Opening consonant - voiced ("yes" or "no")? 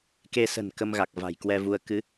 no